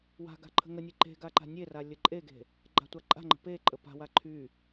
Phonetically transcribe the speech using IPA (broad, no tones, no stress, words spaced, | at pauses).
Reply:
wa̤ɡa̤ ǃʰə̤ŋənʲe ǃe̤ ɡaǃa̤nʲera lʲəǃʼeɡe̤ | ɡ͡ǃa̤tʷaǃʼa̤ŋ͡ǃə̤ pe ǃʼəpa̤wa ǃʰy